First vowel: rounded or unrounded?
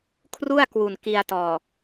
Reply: rounded